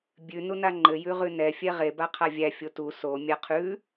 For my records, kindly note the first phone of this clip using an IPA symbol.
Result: bʲ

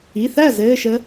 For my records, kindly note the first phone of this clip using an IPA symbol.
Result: i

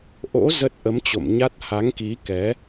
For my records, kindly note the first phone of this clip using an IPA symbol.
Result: ʔ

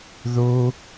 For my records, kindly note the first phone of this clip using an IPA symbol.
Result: ð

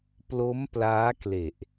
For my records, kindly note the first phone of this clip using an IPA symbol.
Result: p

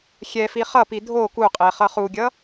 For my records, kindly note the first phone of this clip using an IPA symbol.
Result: xʲ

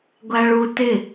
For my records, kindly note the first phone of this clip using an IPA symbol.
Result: ɡʷ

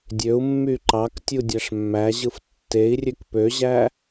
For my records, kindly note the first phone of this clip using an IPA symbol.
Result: dʲ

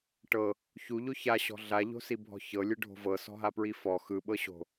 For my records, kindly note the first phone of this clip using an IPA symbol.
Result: ʈ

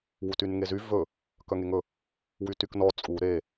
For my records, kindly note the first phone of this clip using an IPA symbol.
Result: w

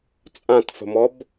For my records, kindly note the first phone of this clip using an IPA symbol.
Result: t͡sʼ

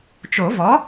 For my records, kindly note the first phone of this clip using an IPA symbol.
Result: t͡ʃ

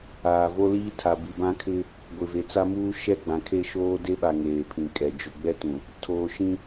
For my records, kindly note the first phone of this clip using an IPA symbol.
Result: aː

